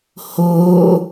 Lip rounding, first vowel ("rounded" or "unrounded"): rounded